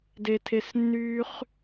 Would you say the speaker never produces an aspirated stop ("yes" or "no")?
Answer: no